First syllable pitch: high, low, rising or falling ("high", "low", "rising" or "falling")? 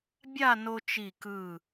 falling